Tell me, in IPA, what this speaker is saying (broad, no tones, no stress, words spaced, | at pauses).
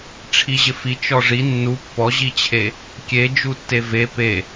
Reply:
ʈ͡ʂʰiʑɪfi t͡ʃɔʐi nːu pːɔʑit͡ɕʰe | kʲed͡ʒutːe ve pe